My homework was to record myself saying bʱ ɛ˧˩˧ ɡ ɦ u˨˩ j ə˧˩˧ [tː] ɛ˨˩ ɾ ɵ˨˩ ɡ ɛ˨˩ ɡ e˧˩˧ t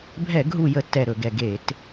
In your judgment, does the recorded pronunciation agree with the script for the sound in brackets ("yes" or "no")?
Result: yes